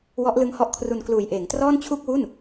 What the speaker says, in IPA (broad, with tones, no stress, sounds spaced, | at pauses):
w ɔ˦˥ ʔ l ɯ˦˥ ŋ h ɔ˦˥ ʔ kʰ r u˧ n k l uː˨˩ j ʔ eː˩˦ ŋ t r ɔː˥˩ n t͡ɕʰ u˥˩ k̚ w u˥˩ n